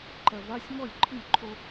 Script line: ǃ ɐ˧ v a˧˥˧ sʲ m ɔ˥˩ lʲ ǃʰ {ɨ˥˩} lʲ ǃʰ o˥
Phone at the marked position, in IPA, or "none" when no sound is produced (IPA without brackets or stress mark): ɨ˥˩